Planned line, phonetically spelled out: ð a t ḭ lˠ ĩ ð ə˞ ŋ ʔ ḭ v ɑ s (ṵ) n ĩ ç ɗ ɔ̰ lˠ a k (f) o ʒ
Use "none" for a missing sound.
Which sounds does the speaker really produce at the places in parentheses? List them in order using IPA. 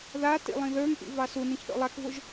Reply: u, v

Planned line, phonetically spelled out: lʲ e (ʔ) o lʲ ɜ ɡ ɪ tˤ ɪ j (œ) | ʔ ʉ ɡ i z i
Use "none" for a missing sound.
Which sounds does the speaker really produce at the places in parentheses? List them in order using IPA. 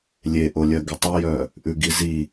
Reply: ʔ, œ

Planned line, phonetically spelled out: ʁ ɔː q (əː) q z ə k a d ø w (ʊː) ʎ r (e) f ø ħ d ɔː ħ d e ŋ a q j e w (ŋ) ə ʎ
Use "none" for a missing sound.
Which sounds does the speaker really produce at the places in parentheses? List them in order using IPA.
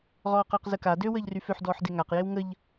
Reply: əː, əː, y, ŋ

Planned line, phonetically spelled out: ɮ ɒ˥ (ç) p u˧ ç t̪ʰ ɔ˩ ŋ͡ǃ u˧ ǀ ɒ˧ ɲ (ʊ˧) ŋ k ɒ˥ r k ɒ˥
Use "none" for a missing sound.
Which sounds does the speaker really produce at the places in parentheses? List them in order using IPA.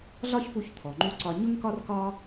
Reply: ç, ʊ˥

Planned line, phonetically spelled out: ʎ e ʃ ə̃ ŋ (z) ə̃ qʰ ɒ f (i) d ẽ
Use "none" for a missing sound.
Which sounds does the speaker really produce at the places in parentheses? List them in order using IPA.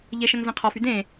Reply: z, y

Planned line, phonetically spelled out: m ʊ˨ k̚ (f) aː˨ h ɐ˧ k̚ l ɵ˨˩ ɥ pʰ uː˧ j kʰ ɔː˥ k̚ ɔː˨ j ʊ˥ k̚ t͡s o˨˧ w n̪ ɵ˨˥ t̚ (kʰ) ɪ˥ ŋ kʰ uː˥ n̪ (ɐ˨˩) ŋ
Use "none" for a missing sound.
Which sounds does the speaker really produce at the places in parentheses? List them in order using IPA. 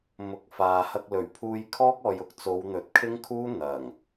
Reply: f, kʰ, ɐ˨˩

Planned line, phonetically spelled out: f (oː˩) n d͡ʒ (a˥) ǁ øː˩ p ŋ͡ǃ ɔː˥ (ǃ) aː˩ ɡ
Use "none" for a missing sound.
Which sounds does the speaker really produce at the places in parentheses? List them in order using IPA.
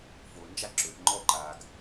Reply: oː˩, a˥, ǃ

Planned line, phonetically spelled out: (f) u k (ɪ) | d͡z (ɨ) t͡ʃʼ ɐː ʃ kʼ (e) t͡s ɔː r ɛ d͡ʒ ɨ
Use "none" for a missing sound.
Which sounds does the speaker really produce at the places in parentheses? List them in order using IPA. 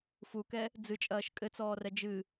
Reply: f, ɛ, ɨ, ɘ

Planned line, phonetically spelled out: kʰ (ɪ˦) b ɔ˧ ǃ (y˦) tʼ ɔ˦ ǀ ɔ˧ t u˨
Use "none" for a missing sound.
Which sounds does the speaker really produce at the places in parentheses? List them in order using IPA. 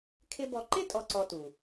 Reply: ɪ˦, ɪ˦

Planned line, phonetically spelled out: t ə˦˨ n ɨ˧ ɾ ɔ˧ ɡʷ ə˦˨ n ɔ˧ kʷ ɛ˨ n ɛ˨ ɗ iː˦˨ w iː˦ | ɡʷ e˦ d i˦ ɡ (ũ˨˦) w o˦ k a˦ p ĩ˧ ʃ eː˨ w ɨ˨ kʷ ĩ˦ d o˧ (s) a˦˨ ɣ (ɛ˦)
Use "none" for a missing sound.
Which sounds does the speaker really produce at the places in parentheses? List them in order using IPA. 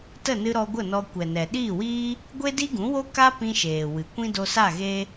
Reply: ũ˨˦, s, e˦

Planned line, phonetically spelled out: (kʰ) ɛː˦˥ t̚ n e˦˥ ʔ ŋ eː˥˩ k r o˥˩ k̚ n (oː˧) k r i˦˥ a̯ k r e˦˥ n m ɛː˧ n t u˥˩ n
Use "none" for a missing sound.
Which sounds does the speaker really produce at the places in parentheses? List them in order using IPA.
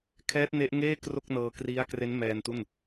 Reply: kʰ, ɤː˧

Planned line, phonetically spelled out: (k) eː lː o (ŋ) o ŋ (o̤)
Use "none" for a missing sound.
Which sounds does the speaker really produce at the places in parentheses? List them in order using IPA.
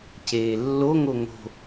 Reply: c, ŋ, o̤

